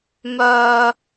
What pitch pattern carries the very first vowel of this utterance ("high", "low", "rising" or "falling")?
high